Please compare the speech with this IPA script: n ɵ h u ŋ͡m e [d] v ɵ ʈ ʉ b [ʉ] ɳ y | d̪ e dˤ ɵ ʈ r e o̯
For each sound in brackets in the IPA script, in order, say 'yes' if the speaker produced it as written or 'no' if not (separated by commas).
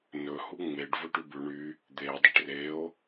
no, yes